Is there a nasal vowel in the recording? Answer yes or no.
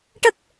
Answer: no